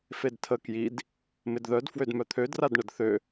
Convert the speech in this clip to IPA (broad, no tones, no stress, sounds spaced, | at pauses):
f e d tʰ ə k j i d | m ɪ d ð œ d f w ø d m œ t̪ʰ ø d r a d ɳ ə d θ ø